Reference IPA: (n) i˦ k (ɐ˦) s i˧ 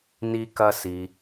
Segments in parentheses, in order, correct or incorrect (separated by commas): correct, correct